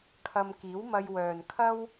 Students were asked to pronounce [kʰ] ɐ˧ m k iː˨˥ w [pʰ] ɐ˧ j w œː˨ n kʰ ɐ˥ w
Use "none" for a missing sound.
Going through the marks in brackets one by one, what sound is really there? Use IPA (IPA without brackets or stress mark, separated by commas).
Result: kʰ, m